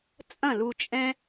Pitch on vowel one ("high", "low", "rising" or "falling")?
falling